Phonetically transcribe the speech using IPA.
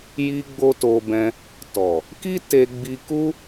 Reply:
j i˦ ɡ͡b o˦ t o˧ b ɛ̃˧ | t ɔ˨ | k i˦ t e˧ ɡ͡b i˧ k u˦

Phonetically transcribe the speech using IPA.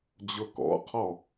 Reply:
d͡ʑ ʊ k ɔ̰ qʰ ɔ

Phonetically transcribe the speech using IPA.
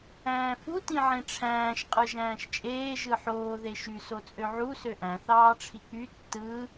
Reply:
æ̃ː f u t ĩ ʕ ẽ ʈ͡ʂʰ æ̃ː ʃ qʼ ɯ ʒ æ̃ː ʃ t͡ʃʼ eː ʒ ɯ ħ oː ð e ʃ y s o t͡sʼ ø ʕ u s ø ʔ æ̃ θ ɑː ʈ͡ʂʰ i k͡p y tː ɯ

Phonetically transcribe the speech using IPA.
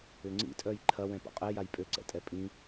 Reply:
ʏ ŋ͡ǀ ḭ tʼ œ j ǃʰ ɐ w ɛ̃ p o̰ qʼ ɛ j a j pʼ ø ǀ ɛ̰ tʼ ɛ pʼ ĩ

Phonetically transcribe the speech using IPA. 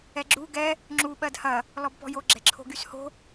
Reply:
ɛ ɡ͡ǁ u ɡ ɛ | ŋ͡ǁ u ɓ ɜ d h ɐ | l ɔ b p ɔ̤ j o ɡ͡ǁ ɛ̤ ǁʰ o̤ ɡ y s h o̤

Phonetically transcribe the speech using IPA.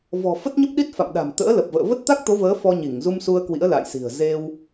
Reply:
v ɔ̤˨˩ f ə˦˥ t̚ ɲ ə˦˥ p̚ ɗ i˦˥ t̚ f a̰˧˨ m ɗ a̤˨˩ m t̪ ə̰ː˧˥ l ə˨˩ p̚ v ə̰ː˧˨ v ə˦˥ t̚ t̪ a˦˥ k̚ t̪ o˨˦ v əː˨˦ f ɔ˧ ɲ i˧˩ ŋ z u˧ m s u˧ ə̯ k w ḭ˧˥ ə̯ l a̰˧˨ j s i̤˨˩ ə̯ z e˧ w

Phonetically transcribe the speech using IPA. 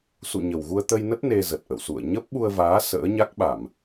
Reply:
s ṵ˧˨ ɲ ə˨˩ w ɣ u˧ ə̯ t̪ ə˧ j n ə˦˥ t̚ n e˧ z ə˨˩ t̚ ʔ ə̰˧˨ w s ṵ˧˨ ə̯ ɲ ə˦˥ p̚ ɓ u˧ ə̯ v aː˨˦ s ə̰ː˧˥ ɲ a˦˥ k̚ ɓ a˧˩˨ m

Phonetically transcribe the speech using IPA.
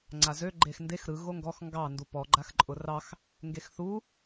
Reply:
ŋ͡ǀ a z ø ɡ͡ǃ e x n d e x ɾ ɯ ɣ o ŋ ɡ ɔ x ŋ ɡ ɑ n d u p ɔ ɡ͡ǃ a x ǃʼ ʊ r ɑ x | ŋ ɡ e x θ u

